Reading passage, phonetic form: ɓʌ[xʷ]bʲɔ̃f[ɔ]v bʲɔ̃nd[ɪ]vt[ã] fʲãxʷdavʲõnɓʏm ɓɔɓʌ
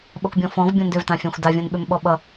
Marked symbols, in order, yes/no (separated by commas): no, no, no, yes